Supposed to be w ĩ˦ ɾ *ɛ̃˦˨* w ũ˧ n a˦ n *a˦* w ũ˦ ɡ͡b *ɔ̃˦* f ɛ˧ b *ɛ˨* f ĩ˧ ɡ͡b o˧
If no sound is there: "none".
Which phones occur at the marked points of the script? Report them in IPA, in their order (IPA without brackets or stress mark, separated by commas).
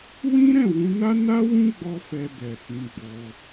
ɛ̃˦˨, a˦, ɔ˦, ɛ˨